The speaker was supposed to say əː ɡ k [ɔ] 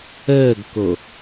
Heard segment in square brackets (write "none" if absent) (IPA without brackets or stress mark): o